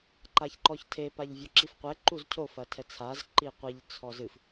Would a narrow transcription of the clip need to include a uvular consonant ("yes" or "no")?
yes